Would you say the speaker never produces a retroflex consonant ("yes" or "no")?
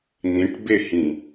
no